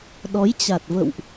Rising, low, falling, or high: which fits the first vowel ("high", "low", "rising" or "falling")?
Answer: rising